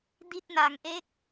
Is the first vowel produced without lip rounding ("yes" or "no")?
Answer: yes